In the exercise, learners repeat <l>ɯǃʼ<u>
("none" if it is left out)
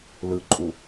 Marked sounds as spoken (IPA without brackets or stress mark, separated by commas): l, u